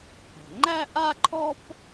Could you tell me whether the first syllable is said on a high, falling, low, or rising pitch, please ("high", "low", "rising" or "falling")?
low